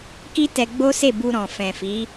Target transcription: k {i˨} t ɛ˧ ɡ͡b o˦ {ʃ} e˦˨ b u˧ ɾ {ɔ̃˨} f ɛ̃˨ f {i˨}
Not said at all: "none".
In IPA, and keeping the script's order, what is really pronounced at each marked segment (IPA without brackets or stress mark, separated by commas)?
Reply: i˦, s, ɔ̃˨, i˨˦